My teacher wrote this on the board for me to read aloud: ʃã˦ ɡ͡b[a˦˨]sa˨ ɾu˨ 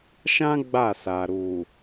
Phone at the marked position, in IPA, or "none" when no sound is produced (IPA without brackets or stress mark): a˦˨